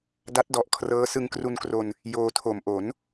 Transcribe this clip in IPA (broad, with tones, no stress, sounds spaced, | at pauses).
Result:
d a˦˥ t̚ d ɔ˨˩ ʔ kʰ r ɤː˦˥ s ɯ˧ ŋ k r u˧ n k r o˧ n | j oː˧ tʰ o˨˩ m ʔ o˩˦ n